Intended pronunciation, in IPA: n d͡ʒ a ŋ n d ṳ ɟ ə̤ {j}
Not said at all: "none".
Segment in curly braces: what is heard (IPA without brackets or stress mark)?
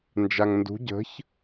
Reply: ç